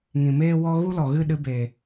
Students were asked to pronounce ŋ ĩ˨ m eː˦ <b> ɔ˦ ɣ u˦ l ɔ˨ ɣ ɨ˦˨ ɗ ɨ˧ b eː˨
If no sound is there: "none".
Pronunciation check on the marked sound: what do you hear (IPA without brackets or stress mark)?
w